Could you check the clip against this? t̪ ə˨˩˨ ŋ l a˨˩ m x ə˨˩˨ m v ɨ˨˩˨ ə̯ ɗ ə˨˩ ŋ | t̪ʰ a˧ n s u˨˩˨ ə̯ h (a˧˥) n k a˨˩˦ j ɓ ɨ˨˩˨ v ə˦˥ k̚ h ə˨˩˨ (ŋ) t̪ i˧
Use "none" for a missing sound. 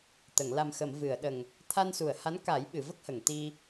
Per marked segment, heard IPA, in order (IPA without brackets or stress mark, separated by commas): a˧˥, ŋ